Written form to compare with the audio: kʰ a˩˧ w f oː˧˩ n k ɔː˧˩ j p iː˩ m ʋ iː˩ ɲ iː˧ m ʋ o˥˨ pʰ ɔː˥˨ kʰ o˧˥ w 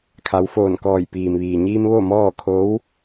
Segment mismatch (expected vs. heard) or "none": pʰ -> m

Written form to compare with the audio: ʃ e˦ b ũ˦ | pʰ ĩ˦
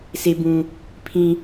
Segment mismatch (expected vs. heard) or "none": ʃ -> s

